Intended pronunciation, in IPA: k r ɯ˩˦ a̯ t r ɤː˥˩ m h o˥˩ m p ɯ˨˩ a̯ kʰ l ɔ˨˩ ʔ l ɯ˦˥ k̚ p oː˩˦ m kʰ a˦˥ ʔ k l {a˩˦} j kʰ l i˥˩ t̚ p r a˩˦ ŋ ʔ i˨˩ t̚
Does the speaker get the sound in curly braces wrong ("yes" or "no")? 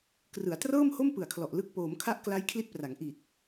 yes